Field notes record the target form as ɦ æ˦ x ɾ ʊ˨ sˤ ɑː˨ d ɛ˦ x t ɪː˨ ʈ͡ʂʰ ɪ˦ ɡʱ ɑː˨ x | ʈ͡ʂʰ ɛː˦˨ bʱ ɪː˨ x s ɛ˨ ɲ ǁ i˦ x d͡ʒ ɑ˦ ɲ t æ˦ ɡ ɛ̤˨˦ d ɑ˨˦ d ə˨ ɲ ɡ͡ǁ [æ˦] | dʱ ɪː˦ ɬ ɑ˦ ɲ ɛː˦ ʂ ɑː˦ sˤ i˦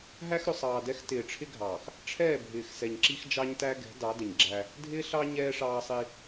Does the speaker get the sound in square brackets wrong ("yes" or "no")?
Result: no